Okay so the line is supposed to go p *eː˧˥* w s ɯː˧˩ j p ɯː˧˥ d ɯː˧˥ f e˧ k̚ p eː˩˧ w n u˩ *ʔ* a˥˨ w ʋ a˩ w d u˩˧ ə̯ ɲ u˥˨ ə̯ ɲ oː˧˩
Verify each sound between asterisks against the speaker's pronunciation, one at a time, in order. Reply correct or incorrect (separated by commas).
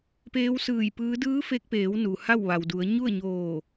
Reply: correct, incorrect